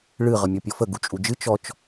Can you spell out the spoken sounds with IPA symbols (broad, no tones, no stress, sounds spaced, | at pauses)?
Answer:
ɭ ɨ ʁ ə mʲ ɔ pʲ ɔ f ə ɡ u t͡ʃʼ u d͡ʒ ɨ t͡ʃ ɔ t͡ʃ